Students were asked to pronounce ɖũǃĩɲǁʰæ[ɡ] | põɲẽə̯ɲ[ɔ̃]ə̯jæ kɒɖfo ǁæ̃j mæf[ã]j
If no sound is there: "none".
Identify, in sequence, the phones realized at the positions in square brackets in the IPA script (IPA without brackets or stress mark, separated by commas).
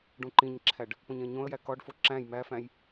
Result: ɖ, õ, æ̃